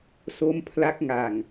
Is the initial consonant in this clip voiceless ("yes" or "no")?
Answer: yes